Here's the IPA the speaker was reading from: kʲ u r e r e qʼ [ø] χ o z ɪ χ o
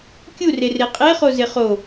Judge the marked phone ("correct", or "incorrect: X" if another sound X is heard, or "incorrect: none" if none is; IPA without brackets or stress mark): incorrect: e